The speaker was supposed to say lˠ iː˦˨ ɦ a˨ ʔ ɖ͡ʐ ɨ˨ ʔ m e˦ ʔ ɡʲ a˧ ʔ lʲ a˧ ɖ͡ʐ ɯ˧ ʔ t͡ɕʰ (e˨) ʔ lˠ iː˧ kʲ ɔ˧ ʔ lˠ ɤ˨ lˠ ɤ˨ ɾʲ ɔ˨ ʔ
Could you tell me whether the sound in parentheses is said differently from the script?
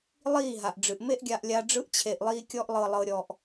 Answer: no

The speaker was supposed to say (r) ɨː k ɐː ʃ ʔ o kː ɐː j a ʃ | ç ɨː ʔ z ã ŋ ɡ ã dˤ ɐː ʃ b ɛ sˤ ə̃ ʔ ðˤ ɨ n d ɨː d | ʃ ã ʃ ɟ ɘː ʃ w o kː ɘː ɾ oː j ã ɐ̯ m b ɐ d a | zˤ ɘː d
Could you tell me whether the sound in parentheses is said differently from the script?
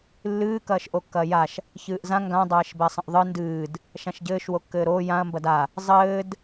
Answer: yes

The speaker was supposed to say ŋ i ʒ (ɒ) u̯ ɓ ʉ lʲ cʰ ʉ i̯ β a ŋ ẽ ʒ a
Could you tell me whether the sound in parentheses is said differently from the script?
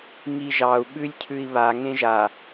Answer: yes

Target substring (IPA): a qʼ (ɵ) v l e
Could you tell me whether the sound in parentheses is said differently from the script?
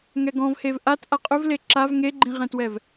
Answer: no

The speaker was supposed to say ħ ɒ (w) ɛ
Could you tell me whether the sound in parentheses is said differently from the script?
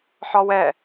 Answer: no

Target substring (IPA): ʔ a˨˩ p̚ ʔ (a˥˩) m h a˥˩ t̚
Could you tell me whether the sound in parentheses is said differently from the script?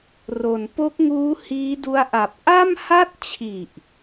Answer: no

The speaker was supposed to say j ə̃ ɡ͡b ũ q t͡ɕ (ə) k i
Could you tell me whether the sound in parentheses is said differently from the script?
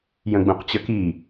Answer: no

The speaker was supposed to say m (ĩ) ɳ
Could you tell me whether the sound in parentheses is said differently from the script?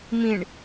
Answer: no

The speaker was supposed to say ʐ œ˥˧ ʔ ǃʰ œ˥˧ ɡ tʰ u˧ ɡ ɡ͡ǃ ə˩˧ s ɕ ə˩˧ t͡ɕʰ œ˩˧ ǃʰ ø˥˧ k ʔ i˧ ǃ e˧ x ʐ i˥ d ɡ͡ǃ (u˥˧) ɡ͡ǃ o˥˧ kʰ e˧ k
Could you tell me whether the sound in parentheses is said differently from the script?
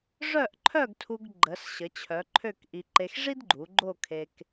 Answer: yes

